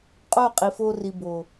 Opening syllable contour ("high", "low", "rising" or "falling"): falling